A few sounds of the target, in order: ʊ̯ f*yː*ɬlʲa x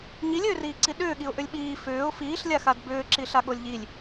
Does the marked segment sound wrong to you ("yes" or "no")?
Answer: yes